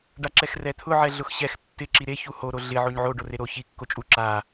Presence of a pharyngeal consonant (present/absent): present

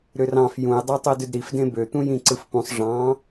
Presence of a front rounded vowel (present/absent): present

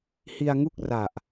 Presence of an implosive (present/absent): absent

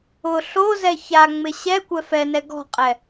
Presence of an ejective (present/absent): present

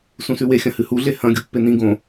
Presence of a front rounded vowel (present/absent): absent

